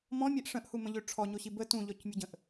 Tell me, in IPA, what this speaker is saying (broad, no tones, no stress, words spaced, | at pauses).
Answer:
mɔ̃mʲɛʔ ʂə̃ʔhumə̃ʎø ʈ͡ʂʰɔɲoɕi bə tũʎɔcmʲuɟə̃ʔ